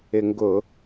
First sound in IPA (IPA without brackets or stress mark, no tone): ɪ